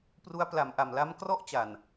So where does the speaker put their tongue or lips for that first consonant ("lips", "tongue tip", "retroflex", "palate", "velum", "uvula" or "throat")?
lips